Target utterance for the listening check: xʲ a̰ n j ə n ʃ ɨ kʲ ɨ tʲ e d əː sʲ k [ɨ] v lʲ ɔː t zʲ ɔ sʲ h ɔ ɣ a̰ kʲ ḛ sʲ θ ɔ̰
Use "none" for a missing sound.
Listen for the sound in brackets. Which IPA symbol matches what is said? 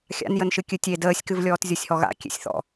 ɨ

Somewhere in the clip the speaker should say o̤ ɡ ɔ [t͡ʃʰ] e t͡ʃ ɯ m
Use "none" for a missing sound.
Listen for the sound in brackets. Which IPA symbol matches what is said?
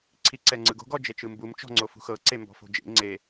d͡ʒ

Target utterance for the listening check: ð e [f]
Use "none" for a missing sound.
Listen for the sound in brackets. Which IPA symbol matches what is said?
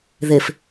f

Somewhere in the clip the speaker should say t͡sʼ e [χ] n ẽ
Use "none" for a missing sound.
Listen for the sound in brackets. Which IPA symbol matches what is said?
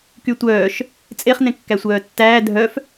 χ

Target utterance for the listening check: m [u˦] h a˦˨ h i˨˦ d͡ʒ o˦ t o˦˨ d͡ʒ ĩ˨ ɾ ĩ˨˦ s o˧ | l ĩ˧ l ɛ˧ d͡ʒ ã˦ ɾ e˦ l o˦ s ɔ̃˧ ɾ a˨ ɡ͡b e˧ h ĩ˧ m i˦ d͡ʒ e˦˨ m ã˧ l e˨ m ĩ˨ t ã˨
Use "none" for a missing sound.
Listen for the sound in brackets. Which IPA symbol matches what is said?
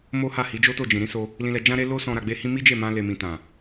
o˦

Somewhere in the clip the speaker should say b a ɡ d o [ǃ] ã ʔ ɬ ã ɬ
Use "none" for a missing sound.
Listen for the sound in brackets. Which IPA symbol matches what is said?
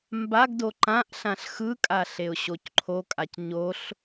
ǃ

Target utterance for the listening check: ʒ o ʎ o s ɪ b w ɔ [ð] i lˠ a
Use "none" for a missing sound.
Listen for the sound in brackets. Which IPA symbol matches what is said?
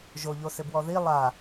ð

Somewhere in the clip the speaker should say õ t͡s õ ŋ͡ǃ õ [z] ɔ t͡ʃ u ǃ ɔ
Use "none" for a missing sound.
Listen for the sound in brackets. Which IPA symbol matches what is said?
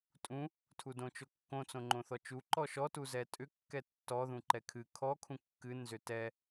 θ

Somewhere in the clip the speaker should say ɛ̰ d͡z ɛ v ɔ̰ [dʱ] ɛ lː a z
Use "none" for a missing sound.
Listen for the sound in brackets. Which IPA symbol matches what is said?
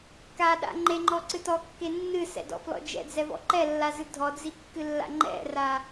ǃ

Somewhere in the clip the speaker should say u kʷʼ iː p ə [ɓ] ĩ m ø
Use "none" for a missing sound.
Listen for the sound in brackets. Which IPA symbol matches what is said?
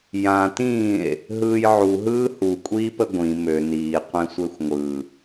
ɡʷ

